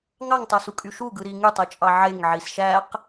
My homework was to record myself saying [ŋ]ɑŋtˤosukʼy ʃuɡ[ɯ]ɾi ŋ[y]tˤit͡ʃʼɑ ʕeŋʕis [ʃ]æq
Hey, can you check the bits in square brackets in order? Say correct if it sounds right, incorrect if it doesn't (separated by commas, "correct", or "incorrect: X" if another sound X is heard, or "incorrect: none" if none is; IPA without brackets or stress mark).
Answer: correct, correct, correct, correct